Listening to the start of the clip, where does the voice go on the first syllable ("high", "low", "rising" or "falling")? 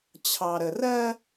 low